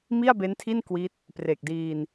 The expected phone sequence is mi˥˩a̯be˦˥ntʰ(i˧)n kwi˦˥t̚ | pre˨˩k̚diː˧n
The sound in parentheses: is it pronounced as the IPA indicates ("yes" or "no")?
no